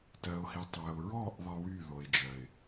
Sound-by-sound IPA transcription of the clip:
tɜ˨ʊ̯hi˨ tˤɜ˨ʊ̯ɹɔ˦˨ʔ ðˤɪ˦wy˦˨ ðo˨ɪ̯d͡ʒɜ˨ɪ̯

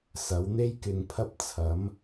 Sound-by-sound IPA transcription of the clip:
sɐ˨˥wn̪e˥jkɪ˨˧ŋpʰɐ˥p̚ t͡sʰɐ˨˥m

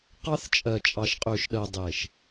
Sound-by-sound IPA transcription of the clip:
qɑ˦θ t͡ʃʼɜ˨t͡ʃʼɑ˨ʃqʼø˨ʃɗɜ˨ dˤe˨ʃ

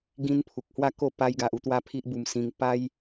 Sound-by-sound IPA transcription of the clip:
ɡĩ˧n pʰu˨k̚hwa˥˧ko˥˧ pa˧jɡa˨ʔ u˧t̪wa˥˧pʰi˦ʔbu˧m sĩ˧ŋ pa˦j

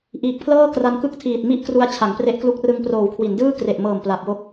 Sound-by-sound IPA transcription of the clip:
ʔiː˨˩k̚pʰlɤː˥˩ kra˧nkɯ˥˩k̚tʰiː˨˩t̚mi˥˩ʔ kru˦˥a̯t͡ɕʰa˩˦ŋpre˦˥ʔklu˦˥k̚ rɯ˧ŋproː˨˩wkʰwi˩˦ndɯː˥˩ kre˨˩ʔmɤː˨˩m pla˨˩p̚wo˦˥k̚

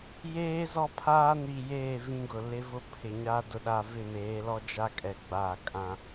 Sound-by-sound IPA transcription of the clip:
jeː˦ zɔ˦pʰaː˦niː˨ jeː˦˨ vĩ˦ɡʊ˨ lɪ˦vʊ˦pʰɪ˨ɲa˦ dʊ˨ɗa˨ vɪ˦˨meː˨˦lɔ˦ d͡ʒa˦kʼɛ˨ ɡ͡ba˦˨kʼã˦

